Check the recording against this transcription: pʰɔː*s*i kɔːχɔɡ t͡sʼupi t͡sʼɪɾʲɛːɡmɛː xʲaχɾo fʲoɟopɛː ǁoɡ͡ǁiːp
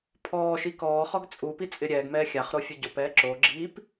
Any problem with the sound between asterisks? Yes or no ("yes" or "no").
yes